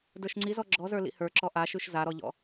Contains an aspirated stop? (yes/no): no